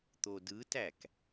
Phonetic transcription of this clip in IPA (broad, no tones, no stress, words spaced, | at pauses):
t̪odɯtæk